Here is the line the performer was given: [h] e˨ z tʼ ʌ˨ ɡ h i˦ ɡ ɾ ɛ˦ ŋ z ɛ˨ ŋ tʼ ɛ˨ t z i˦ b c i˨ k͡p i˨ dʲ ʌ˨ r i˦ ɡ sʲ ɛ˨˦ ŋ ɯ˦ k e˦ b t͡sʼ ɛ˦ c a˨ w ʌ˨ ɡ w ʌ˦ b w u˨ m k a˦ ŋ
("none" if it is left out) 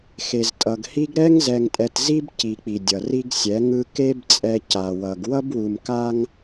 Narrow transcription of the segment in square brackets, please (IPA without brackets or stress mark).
x